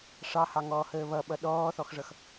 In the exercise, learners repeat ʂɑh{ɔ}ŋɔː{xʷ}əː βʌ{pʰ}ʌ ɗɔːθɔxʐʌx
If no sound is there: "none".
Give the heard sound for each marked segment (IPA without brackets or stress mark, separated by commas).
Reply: ɑ, h, ɓ